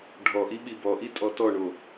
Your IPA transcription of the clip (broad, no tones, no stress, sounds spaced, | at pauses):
ɖʱ ɔ ʔ i ɓ i b ɔ ʔ i tʼ ɔ t ɔ ɳ o